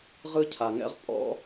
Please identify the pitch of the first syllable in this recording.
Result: high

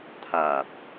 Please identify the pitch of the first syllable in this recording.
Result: low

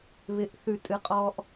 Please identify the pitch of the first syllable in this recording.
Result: low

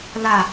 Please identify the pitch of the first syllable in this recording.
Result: falling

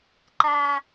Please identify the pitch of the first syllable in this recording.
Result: high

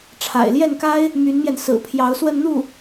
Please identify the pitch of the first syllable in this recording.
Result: low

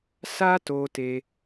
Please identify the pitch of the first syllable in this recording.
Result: high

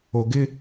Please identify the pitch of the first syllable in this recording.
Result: low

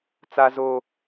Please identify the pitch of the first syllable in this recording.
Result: high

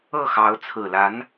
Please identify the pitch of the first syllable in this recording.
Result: falling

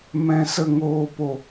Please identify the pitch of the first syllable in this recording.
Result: low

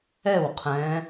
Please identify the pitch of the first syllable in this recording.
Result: falling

